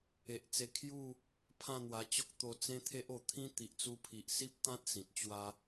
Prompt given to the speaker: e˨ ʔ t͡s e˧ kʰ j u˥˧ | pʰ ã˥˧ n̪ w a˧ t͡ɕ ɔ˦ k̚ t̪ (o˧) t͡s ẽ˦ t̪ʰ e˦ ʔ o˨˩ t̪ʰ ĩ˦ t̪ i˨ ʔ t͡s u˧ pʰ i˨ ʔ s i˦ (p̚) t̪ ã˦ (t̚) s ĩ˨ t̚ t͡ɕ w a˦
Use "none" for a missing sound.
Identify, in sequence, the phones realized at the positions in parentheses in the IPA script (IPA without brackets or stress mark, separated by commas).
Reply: o˧, p̚, t̚